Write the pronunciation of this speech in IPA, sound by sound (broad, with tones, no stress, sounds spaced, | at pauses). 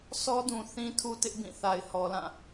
s ɔ˦ d ũ˨ θ ĩ˦ tʰ u˦ t ɪ˦ ʔ b ĩ˦˨ θ a˨ ɪ̯ h ɔ˨ l ã˦˨